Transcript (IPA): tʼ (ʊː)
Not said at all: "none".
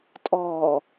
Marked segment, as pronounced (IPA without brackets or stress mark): ɔː